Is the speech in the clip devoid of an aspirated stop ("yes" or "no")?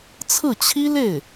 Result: no